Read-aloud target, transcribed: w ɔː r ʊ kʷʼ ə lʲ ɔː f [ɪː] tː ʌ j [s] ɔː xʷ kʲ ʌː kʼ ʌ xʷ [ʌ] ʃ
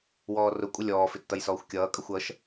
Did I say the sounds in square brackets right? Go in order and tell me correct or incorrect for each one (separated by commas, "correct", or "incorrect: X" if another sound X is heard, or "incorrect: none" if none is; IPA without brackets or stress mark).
incorrect: ɪ, correct, correct